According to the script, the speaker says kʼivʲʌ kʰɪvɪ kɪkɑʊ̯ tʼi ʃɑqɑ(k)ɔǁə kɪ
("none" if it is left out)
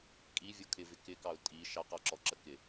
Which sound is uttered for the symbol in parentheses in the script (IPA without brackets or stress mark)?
ǁ